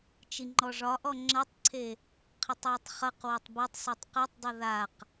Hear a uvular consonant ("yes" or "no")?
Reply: yes